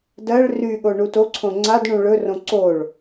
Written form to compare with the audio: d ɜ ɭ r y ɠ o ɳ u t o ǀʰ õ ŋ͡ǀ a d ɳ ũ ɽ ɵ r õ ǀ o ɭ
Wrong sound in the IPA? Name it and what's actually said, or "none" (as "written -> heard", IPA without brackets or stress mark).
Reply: ɽ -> ɭ